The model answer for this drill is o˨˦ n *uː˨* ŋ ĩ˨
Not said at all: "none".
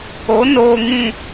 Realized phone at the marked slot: oː˨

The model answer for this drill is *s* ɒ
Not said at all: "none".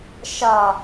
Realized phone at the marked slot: ʃ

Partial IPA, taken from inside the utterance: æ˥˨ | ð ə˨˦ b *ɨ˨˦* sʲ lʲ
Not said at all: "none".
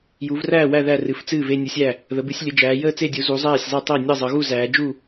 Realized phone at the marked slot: ɨ˨˦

